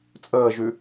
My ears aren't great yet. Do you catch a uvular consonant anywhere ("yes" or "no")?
no